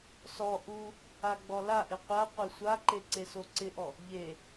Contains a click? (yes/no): yes